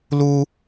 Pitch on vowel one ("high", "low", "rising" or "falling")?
high